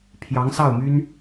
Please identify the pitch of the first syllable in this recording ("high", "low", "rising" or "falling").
rising